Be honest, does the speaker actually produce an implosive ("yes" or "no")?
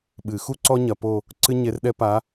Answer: yes